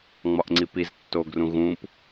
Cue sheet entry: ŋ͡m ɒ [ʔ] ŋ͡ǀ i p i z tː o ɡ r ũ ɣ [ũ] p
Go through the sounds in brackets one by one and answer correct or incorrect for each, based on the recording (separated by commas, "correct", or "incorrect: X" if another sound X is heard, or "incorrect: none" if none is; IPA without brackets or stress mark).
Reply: correct, correct